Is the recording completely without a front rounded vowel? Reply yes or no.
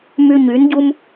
no